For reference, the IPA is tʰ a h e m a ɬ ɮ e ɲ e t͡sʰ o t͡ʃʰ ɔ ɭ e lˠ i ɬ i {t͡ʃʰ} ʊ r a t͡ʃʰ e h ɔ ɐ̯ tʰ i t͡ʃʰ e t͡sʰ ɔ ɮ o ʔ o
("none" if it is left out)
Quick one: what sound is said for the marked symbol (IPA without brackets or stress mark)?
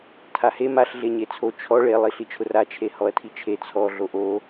t͡ʃʰ